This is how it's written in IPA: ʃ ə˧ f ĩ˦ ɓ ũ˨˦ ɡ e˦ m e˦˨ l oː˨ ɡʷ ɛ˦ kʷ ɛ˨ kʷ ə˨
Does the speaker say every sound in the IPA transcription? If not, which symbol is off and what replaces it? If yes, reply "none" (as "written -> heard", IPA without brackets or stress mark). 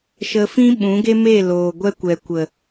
none